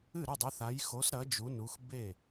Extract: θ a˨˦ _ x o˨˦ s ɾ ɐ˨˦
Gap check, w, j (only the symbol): j